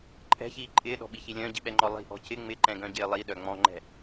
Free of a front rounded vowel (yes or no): no